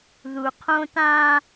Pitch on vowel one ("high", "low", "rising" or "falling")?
low